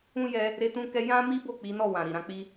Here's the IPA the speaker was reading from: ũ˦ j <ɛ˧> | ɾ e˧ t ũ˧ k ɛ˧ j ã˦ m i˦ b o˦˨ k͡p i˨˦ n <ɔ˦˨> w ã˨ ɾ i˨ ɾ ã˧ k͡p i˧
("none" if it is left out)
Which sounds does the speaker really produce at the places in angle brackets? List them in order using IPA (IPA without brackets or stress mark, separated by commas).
ɛ˧, ɔ˦˨